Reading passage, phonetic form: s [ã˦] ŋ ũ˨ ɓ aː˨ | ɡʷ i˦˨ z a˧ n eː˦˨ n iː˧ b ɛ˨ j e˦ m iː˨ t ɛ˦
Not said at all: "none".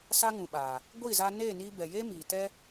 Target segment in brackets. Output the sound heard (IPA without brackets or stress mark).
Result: a˦